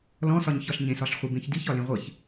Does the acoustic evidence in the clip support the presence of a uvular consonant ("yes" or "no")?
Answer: yes